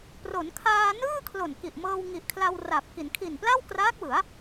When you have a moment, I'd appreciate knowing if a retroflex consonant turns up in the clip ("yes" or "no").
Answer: no